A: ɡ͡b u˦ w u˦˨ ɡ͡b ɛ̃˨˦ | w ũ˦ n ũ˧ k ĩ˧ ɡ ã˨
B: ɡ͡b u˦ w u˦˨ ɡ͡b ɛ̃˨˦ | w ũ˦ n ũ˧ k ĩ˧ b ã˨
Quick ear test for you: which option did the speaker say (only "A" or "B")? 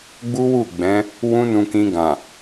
A